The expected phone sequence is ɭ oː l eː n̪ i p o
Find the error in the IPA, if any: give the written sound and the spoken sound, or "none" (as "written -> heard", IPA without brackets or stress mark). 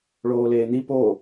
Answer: none